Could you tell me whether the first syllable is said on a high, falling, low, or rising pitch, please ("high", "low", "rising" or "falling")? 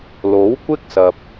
rising